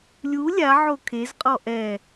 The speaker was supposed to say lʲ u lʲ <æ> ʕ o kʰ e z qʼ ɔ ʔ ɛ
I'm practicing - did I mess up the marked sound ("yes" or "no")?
yes